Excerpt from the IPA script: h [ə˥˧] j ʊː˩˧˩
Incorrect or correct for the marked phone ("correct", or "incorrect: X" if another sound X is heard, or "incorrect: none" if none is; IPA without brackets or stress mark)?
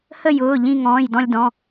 correct